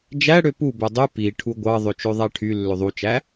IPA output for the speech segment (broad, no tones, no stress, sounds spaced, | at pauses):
d͡ʒ æ ɽ ø p u b ø dˤ y p i ʈʰ u ɡʷ ɑ ðˤ ø t͡ʃ ø ðˤ æ ʈʰ y lː ø ðˤ u t͡ʃ æ